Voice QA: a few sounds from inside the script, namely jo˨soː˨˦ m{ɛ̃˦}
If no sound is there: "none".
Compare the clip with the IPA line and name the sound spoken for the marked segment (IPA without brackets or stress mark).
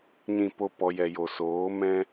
ɛ̃˦